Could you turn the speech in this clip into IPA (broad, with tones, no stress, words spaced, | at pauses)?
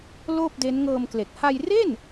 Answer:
loː˥˩p̚de˦˥n ŋɤː˧mkle˨˩k̚ ha˧jre˥˩n